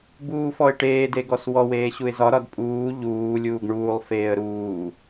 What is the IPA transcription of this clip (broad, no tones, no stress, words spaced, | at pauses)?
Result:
buːfɔɪ̯ʈeːd eɡɔswɔ weːɕuɪ̯zɒ ɾɒdpʼuː ʎuː lʲuːɡɳuːlˠ feːə̯ɾuː